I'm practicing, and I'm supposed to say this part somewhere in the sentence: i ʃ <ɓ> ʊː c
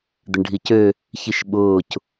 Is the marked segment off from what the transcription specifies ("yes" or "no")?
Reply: no